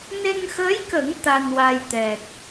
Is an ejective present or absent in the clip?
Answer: absent